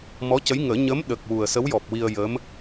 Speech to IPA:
m ɔ˧˥ c ə˧˥ j ŋ əː˨˩˦ ɲ ə˧˥ m ɗ ə˨˩ k̚ w u˨˩ ə̯ s ə˧˥ w j ɔ˨˩ p̚ w i˧ ə̯ j ə˧˥ m

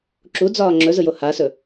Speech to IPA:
ǁ u d͡z ɒː ŋ͡ǁ ɵ z ɯ j o h a s ɵ

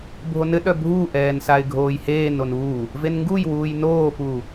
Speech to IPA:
bʱ o n ɘ ɗ œ bʱ u ʔ ɛː n s a ɪ̯ ɡʱ oː j h eː n o n uː | v e n ŋ ɡ u j w uː j n oː p uː

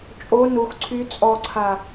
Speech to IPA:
t͡ʃʼ o n u x ǀʰ y t͡sʼ ɔ ǀʰ a

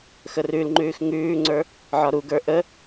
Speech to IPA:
x ə r ʉ l ŋ͡ǃ ʉː x ŋ ʉː ŋ͡ǀ ə˞ | ʕ ɒ ɾ u ɡ ə˞ ʔ ə

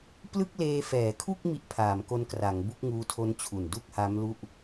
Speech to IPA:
p l ɯ˥˩ k̚ l eː˧ f ɛː˩˦ kʰ u˥˩ k̚ m i˥˩ ʔ pʰ aː˩˦ m k o˦˥ n k r a˩˦ ŋ b u˥˩ k̚ ŋ uː˦˥ tʰ o˦˥ n t͡ɕʰ u˨˩ n d u˥˩ k̚ h a˦˥ m l u˥˩ ʔ

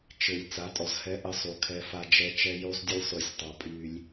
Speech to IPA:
t͡ʃ ɘ˨ lʲ t͡s a˨˦ tʼ ɔ˨ z h ɛ˦ ʔ ə˦ sˤ u˨ kʰ ɛ˦ f a˦ d͡ʒ ɛ˦ t͡ʃ ɛ˦ j u˦ sˤ dʲ ʊ˦ lʲ sˤ y˨ sʲ tˤ ɑ˨ pʼ y˦ lʲ

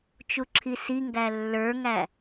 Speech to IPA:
t͡ʃ u ǁʰ i s i ŋ ɡ æ lː ə˞ ŋ æ

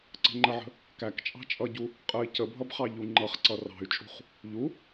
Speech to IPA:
ǀ ə̤ ŋ͡ǃ ə ʕ ə̤ | k æ k t͡ʃʼ ɑ̤ t͡ʃʼ ʌ ɟ u | qʼ ə i̯ c ə bʱ ʌ b χ ɑ ʎ u ŋ͡ǃ ʌ χ ǀ ʌ r ɑ̤ y̯ t͡ʃʼ ṳ χ | ʎ u

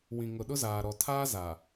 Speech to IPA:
w ĩ˨ ŋ ʊ˨ ɗ ʊ˦ z aː˨ ɾ ɔ˨ tʰ aː˦ z a˨

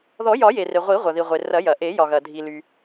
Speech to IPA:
ð ɔ˨˩˦ j ɒ˨˩˦ j e˩ r e˩ ʁʷ i˨˩˦ ʁʷ ɐ˩ ð i˩ ʁʷ e˩ r ɐ˨˩˦ j ɐ˩ ʔ e˨˩˦ j ɒ˩ ɣ ɐ˩ dʱ i˩ l y˩

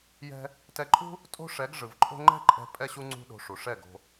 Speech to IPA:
j ɛ̤˦ | t ɛ˧ ǃʼ ṳ˦ | tʼ o̤˦ ʂ ɛ˨˦ ɡ ʐ ɯ˨ v ǃʼ o̤˦ ŋ͡ǃ ɛ̤˦ ǃʼ ɛ̤˧ pʼ ɛ˦ ɕ u˦ ŋ͡ǀ ṳ˦ ɗ o̤˧ ʂ u˨ ʂ ɛ˦˨ ɡ o̤˧

